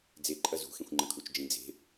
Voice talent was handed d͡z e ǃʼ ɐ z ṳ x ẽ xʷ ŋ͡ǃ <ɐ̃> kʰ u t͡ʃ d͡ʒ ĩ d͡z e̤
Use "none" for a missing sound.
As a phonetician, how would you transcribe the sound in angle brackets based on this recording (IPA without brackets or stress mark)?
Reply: ɐ̃